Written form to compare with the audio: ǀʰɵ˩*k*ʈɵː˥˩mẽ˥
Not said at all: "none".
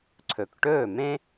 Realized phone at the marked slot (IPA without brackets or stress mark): k